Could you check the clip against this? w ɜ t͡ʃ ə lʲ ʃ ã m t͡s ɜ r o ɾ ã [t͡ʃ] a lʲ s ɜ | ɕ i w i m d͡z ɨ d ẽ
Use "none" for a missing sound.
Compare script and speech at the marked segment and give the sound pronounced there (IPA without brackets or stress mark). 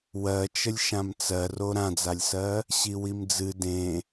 d͡z